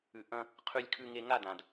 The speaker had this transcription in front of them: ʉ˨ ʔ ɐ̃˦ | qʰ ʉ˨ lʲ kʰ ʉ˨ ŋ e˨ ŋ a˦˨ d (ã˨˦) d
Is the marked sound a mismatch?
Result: yes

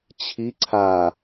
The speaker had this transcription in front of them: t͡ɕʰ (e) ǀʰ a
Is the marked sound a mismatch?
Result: yes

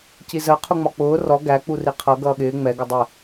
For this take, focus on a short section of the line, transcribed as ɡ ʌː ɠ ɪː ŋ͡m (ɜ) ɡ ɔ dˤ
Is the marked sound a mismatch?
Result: yes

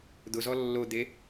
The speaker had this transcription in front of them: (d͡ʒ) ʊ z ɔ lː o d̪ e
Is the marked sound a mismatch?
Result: yes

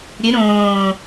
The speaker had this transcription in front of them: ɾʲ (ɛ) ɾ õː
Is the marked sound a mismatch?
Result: yes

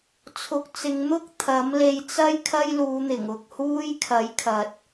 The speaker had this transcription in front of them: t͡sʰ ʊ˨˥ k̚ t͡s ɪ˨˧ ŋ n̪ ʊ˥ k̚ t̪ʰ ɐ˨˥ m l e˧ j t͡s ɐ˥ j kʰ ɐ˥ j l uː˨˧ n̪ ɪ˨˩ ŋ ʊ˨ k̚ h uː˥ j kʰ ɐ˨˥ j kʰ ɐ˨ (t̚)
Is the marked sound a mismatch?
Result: no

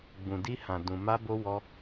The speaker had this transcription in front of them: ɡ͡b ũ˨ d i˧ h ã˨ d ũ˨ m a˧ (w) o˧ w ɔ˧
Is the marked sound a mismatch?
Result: yes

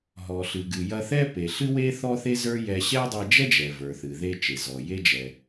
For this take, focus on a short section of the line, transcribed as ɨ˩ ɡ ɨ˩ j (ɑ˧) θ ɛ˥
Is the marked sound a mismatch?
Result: yes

